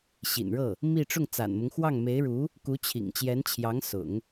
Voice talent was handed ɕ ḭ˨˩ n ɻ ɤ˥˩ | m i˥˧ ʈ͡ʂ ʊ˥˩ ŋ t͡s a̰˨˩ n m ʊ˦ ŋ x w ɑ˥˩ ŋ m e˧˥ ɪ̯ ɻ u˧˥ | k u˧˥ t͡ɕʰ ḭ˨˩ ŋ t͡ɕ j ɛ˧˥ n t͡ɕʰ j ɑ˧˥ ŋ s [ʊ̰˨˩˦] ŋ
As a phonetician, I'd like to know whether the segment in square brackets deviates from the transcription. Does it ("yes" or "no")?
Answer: no